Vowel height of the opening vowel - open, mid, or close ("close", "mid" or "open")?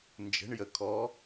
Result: mid